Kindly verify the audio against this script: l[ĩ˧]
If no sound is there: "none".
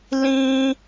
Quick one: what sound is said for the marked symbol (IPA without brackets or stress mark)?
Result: ĩ˧